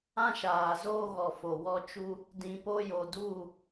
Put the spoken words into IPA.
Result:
ã˦ʃaː˨ zoː˦ ɣɔ˨ fo˨wɔ˦ t͡ʃu˦ | dĩ˨po˦jo˨ du˦˨

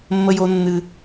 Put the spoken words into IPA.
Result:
mːə˦jo˦nːɨ˦

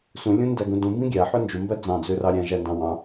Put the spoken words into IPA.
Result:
sũlʲũndæɡũ dũmbĩ ɡʲæħø nd͡ʒumbæ d͡zɑ̃d͡zørɑ ɾʲæ̃ʒændɑ̃ wɑ̃

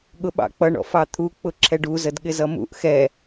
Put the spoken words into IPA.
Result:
ɠʊɓɑ̰k͡pʌ ɳɔ̰fɑt̪ʰu k͡pʊǁʰɛɖu zədɠɪzʌmṵʔ xɛ

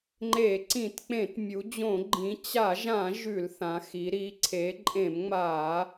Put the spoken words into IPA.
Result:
ŋ͡ǃe˧˩˧ ǀĩ˧˩˧tk͡pẽ˧˩˧t mʲu˩˧d͡ʑõ˧˩˧ ɡ͡ǃĩ˩˧ t͡ɕa˧˩˧ʒã˧˩˧ ʒʉ˧˩˧lθã˩˧xi˩˧ ɾi˩˧ǀʰe˩˧ ǃʼẽ˧˩˧mŋ͡ma˧˩˧

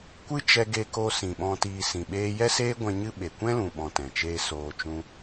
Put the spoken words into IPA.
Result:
kʷɨ˦t͡ʃɛ˧ ɡe˧ko˧ sĩ˨ɓɔ̃˧tiː˧ sĩ˨ɓeː˧ jɛ˦seː˦ɡʷɛ̃˧ ɲɨ˦ɓe˨ kʷɛ̃˦lũ˨ɓɔ̃˨ tɛ̃˨t͡ʃeː˧ soː˧t͡ʃũ˦

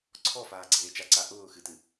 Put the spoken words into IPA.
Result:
ǀʰɔfaː ɡ͡ǀeːt͡ʃaǀa ʔʊː xɨtɨ

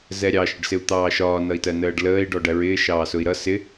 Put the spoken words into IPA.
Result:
zɛɾʲɑ ʃəɖsɪu̯t̪ɑːʃɒː nʌi̯tɜnəːɖləːi̯ ɖɔɖæɹɪː ʃɑːsʊi̯ɾʌ sɪ

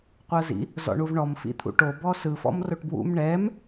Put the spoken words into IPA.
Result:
qʷɤzḭ | zɔ̰ɳuvɳɔm fḭt̪ʰṵʈo bɔsɯ fɔ̰mroʈbwṵm ɳɛm

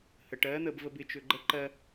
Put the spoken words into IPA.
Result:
həʈɜ n̪əbvəb ɪ t͡ʃøɡ͡ǃə ǃɜ

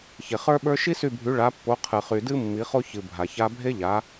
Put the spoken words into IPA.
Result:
çe˨χə˞˥ɓə˞˥ ʃi˥sy˦˨bʱy˨˥ ɭa˨˥pːo˨˥ qʰɨ˨χy˨dɨ˥ mːi˨˥χo˥ çɨ˨ bʱa˨ça˥ bʱe˥ʎa˨˥

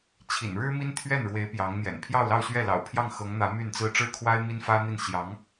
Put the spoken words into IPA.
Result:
t͡ɕʰḭ˨˩nɻɻ̩˥ mi˥nt̪ʰɥɛ˥˩nɻwe˧˥ɪ̯ pjɑ˧˥ŋn̪jɛ̰˨˩n pʰjɑ˥˧ʊ̯lɑ˥˧ʊ̯ɕɥɛ˥˩ lɑ̰˨˩ʊ̯pʰjɑ˥˩ŋ xɤ˧˥ŋn̪ä˧˥ my˥˩nt͡sɹ̩˥ ʈ͡ʂɻ̩˥˩kʰwa˥ɪ̯ mi˥nfä˥n̪i˥˩n ɕjɑ˧˥ŋ

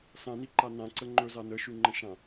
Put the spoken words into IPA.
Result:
sãniǃa nãǀə ŋ͡ǃɵza nəʃʉŋ͡ǃə̃ʃã

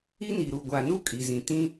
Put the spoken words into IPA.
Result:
i˦ni˨ɾu˨ ɡʷa˨nu˦ kʼi˨zĩ˨ tĩ˦

